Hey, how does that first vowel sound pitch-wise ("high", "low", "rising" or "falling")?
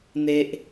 high